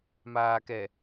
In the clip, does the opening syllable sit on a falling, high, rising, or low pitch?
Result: low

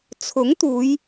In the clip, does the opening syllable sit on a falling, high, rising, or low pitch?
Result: rising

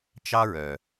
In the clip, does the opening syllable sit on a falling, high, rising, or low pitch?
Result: high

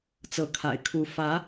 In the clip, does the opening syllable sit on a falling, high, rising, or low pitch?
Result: rising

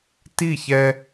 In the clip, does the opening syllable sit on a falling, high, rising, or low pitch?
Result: falling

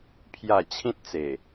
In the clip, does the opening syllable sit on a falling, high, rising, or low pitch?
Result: falling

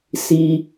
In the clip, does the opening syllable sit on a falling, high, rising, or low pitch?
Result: low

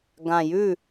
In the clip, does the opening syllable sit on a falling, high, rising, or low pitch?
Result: low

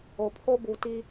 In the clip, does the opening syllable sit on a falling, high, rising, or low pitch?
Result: low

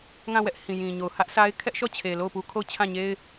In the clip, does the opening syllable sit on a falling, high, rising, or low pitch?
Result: falling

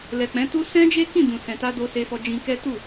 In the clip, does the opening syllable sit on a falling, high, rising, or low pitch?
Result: low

